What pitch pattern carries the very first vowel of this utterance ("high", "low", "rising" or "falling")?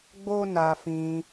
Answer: high